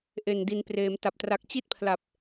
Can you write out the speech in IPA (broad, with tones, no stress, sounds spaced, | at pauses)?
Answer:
ʔ e˨˩ n d i˩˦ n p r eː˩˦ m t a˨˩ p̚ t r a˨˩ k̚ t͡ɕ i˥˩ t̚ pʰ l a˨˩ p̚